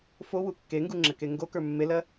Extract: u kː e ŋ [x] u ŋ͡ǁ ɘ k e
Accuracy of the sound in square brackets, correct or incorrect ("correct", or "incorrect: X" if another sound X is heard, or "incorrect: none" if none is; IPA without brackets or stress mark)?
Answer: incorrect: ɡ